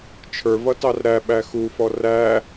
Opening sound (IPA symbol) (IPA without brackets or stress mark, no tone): t͡ʃʰ